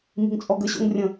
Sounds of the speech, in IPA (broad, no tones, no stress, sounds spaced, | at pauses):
m i̤ ŋ t͡sʼ ɔ ɡ ə ɕ o̰ ŋ rʲ ə̃